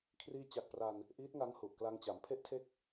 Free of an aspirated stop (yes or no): no